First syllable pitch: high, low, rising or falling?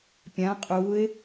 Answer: rising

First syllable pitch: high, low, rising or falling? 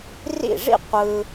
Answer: falling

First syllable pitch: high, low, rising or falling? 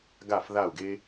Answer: falling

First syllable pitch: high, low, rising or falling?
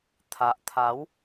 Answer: low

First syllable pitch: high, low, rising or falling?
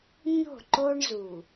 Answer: falling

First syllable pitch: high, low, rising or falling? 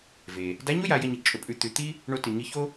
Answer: low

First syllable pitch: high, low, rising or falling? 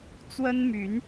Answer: high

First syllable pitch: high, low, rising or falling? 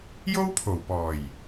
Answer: high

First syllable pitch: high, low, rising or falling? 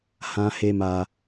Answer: low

